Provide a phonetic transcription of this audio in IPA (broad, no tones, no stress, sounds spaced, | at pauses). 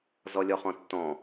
z ɔ lʲ ɔ χ ɔ̃ tː ɔ̃